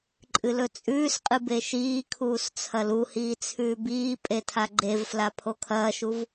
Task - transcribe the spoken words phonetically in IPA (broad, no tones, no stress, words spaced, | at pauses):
ǃʼɨlɵt͡sʼʉːsqʼɨ beʃiːkʰuːs t͡sʰɐluhiː t͡sʰʉːbiːpʼe tʰaɡ͡ǃevfla pʰokʰɐːʃuv